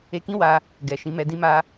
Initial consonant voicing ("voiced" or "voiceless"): voiceless